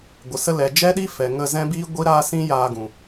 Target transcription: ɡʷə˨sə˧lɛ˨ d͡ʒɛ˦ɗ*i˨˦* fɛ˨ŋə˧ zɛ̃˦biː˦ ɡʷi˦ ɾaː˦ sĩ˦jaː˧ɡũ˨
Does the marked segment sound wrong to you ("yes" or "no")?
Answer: yes